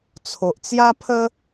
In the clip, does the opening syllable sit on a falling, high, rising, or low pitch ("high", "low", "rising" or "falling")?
low